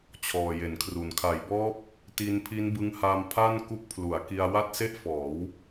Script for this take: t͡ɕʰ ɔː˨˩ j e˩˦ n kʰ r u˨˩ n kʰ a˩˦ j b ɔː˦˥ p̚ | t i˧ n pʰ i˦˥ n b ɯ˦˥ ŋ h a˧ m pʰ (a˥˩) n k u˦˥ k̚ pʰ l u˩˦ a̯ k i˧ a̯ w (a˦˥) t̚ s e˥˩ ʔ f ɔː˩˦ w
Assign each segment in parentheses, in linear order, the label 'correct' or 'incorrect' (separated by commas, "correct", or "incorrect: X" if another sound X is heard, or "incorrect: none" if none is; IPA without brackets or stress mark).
correct, incorrect: a˥˩